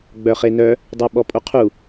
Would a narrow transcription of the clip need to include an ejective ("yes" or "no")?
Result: yes